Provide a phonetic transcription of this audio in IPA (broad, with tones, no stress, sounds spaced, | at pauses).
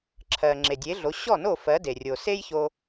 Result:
ǁʰ ɜ˩ ŋ͡ǁ e˩ dʲ e˩˥ ɮ o˩˥ ɕ ɔ˥˩ n o˥˩ f ɜ˩˥ d e˩ rʲ o˩ s e˥ j ç o˧